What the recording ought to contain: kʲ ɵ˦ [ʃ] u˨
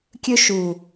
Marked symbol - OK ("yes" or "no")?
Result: yes